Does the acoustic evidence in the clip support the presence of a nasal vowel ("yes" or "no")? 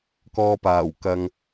no